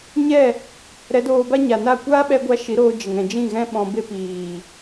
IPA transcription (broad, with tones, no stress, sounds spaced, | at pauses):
ɲ ɛ˦˨ | ɾ ɛ˨˦ d oː˧ b a˦ ɲ a˨ n a˦˨ kʷ aː˦ ɓ ɛ˧ ɡʷ a˧ ʃ i˨˦ ɾ oː˧ d͡ʒ ə˨ ŋ ɛ̃˨ d͡ʒ ĩ˦˨ ɣ ɛ̃˦ ɓ ɔ̃˧ b e˦ p iː˨